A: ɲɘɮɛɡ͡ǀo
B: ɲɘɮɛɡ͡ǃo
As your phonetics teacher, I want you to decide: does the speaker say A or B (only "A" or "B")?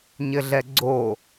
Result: A